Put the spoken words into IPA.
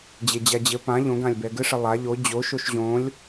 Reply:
d͡ʑ e d͡ʑ a d͡ʑ ɘ p ã ʎ õ ɡ ã lʲ b ɛ ɡ ɘ ʂ ɘ lˠ a ʎ o d͡ʑ o ʃ o ʃ ʑ õ lʲ

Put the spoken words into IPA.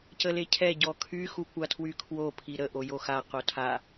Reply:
c ə l e cʰ ɛ ɟ ɔ kʰ y x u kʷ a tʰ w y kʰ w o pʰ i ɾ ə ʔ o j o x a q o tʰ a

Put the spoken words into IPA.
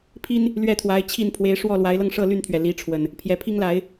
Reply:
pʰ i˦ n | l ɥ ɛ˥˨ t̪ʰ w a˨˦ ɪ̯ t͡ɕʰ i˥˨ n pʰ w e˨˦ ɪ̯ ʂ w ɔ˥˨ l w a˨˦ ɪ̯ l ɤ˧ ŋ ʂ ɤ˥˨ l y˥˨ n t̪ʰ ɥ ɛ˩ l i˨˦ ʈ͡ʂʰ w ə˨˩ n | pʰ j ɛ˨˩ pʰ i˦ ŋ l a˨˦ ɪ̯

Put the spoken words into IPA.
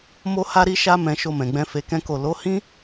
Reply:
m o˧ h a˧ ɾ i˧ ʃ a˦ m ɛ̃˧ ʃ o˧ m ɛ̃˨ ɡ͡b ɛ̃˧ f e˧ k ɛ̃˦ k o˦˨ l o˨˦ h ĩ˦

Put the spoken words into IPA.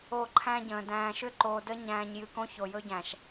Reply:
o˦˨ ǃʰ æ̃˦ ɟ ə̃ː˨ d æ̃ː˨ ʃ ʏ˦ ǃ oː˨ d ə˦ ɲ æ̃ː˨ ɲ j ɨ˨ k õ˦ ç o˨ j ɵ˦ ɟ æ̃˨ ʃ

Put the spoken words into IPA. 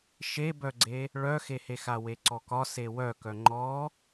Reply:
ʃ e b œ ɡ͡ǀ e | ɭ œ x e h e x a w e ǀ ɔ k ɒ s e w œ k œ ŋ͡ǃ ɔ

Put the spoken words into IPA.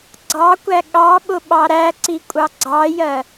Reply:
ɡ͡ǀ ɑ kʷ æ ɠ ɑ ɓ ʊ ɓ ɑ ɾ æ ǀ i kʷʼ ɑ ɡ͡ǀ ɑ j ɜ

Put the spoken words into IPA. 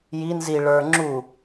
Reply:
j i n z i ɭ ə˞ ŋ͡ǁ u

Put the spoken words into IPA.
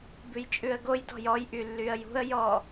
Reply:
b ʉ j t͡ʃʼ ʉ ə̯ ɡ o j d ɔ̤ j ɔ j ʔ y lː y ə̯ j ṳ ə̯ j ɔ

